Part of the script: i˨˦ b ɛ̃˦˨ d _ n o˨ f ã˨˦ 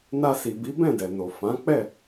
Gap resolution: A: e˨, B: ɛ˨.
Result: B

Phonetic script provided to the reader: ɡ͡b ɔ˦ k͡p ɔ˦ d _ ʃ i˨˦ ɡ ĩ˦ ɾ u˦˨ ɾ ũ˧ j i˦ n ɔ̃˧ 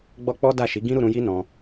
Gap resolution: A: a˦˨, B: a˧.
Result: A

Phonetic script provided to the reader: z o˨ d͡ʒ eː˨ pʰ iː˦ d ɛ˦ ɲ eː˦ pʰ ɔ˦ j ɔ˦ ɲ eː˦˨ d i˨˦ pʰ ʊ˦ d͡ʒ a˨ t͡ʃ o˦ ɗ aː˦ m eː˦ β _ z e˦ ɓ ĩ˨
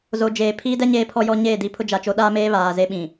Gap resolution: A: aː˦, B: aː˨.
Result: B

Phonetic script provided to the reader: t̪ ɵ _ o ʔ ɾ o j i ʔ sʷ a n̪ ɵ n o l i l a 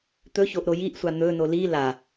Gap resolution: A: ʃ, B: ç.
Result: B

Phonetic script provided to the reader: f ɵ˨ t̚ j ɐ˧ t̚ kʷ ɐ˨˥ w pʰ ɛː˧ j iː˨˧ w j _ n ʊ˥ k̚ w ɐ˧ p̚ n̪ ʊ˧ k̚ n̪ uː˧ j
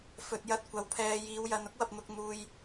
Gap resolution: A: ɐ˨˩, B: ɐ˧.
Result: B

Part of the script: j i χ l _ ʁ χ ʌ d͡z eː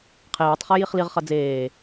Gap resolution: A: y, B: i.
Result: B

